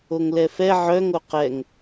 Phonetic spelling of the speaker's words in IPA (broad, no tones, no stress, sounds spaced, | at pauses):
o ŋ l ɛ f ɛ ʕ œ ŋ o q ɛ ŋ